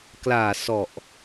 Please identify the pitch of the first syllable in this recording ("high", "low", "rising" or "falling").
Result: low